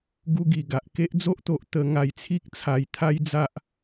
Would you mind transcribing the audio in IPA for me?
ɡ u˧ ɡ i˨˩ ɡ a˨ ʔ k e˦ ʔ d͡z o˦ ʔ t̪ o˨ ʔ t̪ ə˧ ŋ a˧ j t͡sʰ i˦ k̚ t͡sʰ a˧ j t̪ʰ a˦ j d͡z a˦ ʔ

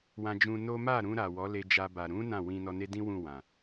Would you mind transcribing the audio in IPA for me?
w ã˧ d͡ʒ ũ˧ n o˦ m a˦˨ ɾ ũ˧ ɾ a˨ w ɔ˨˦ l e˧ d͡ʒ a˧ b a˨ ɾ ũ˨˦ n ã˦˨ w ĩ˧ n ɔ˧ n e˦ d ĩ˦ w ũ˦˨ w ã˨

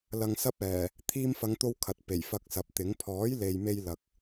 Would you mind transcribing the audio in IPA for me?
l ɐ˧ ŋ s ɐ˥ p̚ ɛː˨˩ | t̪ʰ iː˧ m f ɐ˨˧ ŋ t̪ o˧ w kʰ ɐ˨ t̚ p e˨˩ j f ɐ˧ k̚ s ɐ˨ p̚ t̪ ɪ˨˥ ŋ pʰ ɔː˨˥ j l e˨ j m e˧ j l ɐ˧ k̚

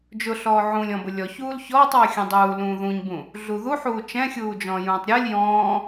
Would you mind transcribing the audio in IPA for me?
d͡ʒ ʊ ɬ ɔː ʕ ũ lʲ ɔ̃ b ʊ lʲ ɔ ç uː l ç ɔː tˤ w ɘ xʲ ũ dˤ uː l ũː ð ũ ɲ b ũ | ɮ u ð u ħ uː t͡ʃ ɛ̃ xʲ uː d͡ʒ ɔ̃ː j ũː tˤ ɾʲ ɔ lʲ j ɔ̃ː

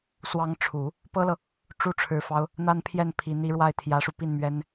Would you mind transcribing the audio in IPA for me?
s w ɑ˧˥ ŋ ʈ͡ʂʰ u˨˩˦ | p ɤ˥ l ɤ˨ | ʈ͡ʂ u˥ ʈ͡ʂʰ ɻ̩˧˥ f ɑ˥ ʊ̯ | n̪ a˥˧ n pʰ j ɛ˥˩ n pʰ i˧˥ n̪ i˥ ɻ w a˥˩ ɪ̯ t̪ʰ j ä˧˥ ʂ u˧ p i˥˩ n m ɥ ɛ˥ n

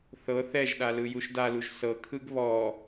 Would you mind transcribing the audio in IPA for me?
θ ɤ θ ɛ ʒ ɗ a l ɯ j u ʃ d a l u ʒ s ɤ kʰ ɯ ɡ β ɔ

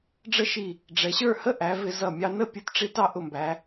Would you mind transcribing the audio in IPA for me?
ɖ͡ʐ ə˥ ʃ i˧˩ | ɖ͡ʐ ɛ˩˧ ɕ ə˞˥˧ h ə˥ ʔ æ˩˧ v ɪ˧ z ʌ˧˩ mʲ ɑ˧ n ə˥˧ pʲ u˧ t ʈ͡ʂ i˧ t ɑ˥ ʔ ʊ˧˩ m b æ˩˧

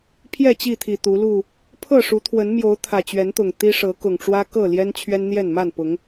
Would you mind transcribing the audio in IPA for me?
pʰ j ɛ˥˨ t͡ɕ i˥˨ t̪ʰ i˨˩ t̪ u˨˦ l u˥˨ | pʰ ɤ˥˨ ʂ u˨˦ t̪ʰ w ə˨˦ n m j o˨˦ ʊ̯ t̪ʰ ä˨˩ t͡ɕ ɥ ɛ˨˦ n t̪ ʊ˨˩ ŋ t̪ i˦ ʂ ɤ˨˦ k ʊ˨˩ ŋ ʈ͡ʂ w ä˦ k ɤ˥˨ l j ɛ˦ n t͡ɕʰ ɥ ɛ˦ n n̪ j ɛ˥˨ n m a˥˨ n p ʊ˨˦ ŋ

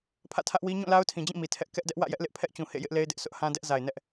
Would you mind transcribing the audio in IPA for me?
pʰ ä̰˦˨ tʰ ä˦ ʔ w i˦ ɲ ũ˦˨ l a˦ ʊ̯ tʰ ĩ˨ d͡ʑ ĩ˦˨ m i˨ tʰ ɛ˦ ʔ k ɛ˦ ʔ d ɛ˦ ʔ w ä̰˦˨ j ɛ˦ ʔ l ɪ˦ ʔ pʰ ɛ˦ ʔ t͡ɕ ũ˨ h ḛ˦˨ j ɪ˦ ʔ l e˦ ɪ̯ d ɪ˦ ʔ s ʊ˦ ʔ h ã˦ d ɛ˦ ʔ z a˨ ɪ̯ n ɛ˦ ʔ

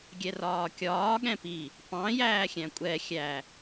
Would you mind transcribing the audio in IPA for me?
ɡʲ ɛ r ɒː kʲ ɒː ɠ ɛ̃ p i | p ɑ̃ j æː xʲ æ̃ kʷʼ ɛ xʲ æ

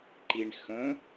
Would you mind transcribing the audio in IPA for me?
ǃ i ɳ x ə̃

